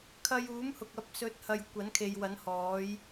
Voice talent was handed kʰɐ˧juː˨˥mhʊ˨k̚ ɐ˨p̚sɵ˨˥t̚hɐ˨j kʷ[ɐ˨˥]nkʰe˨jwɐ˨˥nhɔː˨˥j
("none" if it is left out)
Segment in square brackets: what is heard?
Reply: ɐ˨˥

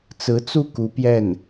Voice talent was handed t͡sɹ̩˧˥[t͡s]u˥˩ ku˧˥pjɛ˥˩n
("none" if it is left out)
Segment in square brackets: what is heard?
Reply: t͡s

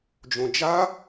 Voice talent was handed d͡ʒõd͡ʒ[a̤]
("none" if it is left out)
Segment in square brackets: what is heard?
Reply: a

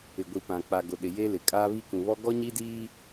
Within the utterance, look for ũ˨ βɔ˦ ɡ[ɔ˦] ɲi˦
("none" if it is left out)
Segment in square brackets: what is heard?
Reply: ɔ˦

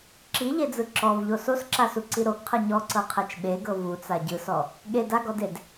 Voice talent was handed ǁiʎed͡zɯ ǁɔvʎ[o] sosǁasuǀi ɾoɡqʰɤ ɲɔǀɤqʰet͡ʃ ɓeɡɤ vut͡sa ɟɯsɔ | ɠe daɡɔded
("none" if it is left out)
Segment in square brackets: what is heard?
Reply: o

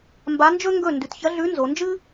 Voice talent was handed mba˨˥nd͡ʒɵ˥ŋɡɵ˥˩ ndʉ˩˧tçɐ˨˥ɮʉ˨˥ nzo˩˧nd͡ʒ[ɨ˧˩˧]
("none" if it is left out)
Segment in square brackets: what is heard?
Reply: ɨ˥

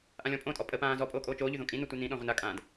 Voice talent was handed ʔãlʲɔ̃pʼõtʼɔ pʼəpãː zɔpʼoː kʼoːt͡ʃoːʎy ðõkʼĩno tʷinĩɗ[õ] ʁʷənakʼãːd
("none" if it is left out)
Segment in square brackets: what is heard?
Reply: ɔ̃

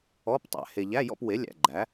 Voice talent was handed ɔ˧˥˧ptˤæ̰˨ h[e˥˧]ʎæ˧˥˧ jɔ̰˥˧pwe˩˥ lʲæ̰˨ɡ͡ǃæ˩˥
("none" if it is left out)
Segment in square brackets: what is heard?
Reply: e˨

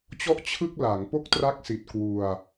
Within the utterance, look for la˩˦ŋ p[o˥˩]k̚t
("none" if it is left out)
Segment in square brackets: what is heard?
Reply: o˥˩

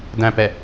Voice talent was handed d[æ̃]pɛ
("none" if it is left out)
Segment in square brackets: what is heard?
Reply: æ̃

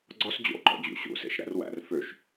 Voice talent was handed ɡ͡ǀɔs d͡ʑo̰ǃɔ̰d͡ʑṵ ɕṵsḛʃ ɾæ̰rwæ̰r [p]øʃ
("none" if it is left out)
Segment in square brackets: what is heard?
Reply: f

